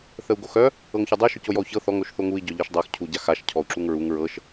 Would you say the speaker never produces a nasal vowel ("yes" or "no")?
yes